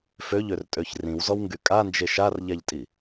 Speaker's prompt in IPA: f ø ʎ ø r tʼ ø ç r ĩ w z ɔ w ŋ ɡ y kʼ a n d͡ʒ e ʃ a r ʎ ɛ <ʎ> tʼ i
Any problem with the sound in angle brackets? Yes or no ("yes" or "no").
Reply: no